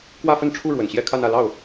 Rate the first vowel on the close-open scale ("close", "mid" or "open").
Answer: open